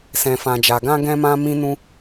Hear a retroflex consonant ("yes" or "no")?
no